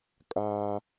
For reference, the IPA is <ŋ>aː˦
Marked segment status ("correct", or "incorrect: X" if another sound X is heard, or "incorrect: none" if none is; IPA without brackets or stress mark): incorrect: kʼ